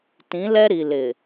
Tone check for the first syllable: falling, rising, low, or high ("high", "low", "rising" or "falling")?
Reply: rising